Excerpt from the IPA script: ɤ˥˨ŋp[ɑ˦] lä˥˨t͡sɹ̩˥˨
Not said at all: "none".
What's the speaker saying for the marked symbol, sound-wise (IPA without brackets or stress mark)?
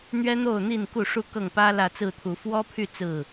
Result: ä˦